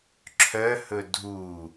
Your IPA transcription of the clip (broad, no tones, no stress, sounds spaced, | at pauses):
ǁʰ œ h ɵ dʱ u